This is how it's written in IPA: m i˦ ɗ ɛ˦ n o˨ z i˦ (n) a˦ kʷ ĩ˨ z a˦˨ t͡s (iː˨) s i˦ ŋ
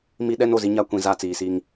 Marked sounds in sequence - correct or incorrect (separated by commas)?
incorrect, correct